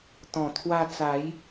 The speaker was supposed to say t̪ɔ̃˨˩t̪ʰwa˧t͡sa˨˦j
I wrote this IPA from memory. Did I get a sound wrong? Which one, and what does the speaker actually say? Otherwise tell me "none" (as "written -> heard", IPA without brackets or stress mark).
none